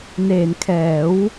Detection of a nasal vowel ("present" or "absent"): absent